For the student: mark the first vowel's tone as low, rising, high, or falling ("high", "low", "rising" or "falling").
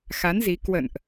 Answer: rising